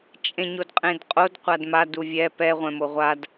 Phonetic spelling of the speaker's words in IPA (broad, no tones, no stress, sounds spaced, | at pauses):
t͡ʃʼ ẽ ɲ o d qʼ ẽ d qʼ o d qʷ a d m a d u vʲ ɛ p ɛ ʁʷ ɛ̃ m o ʁʷ a d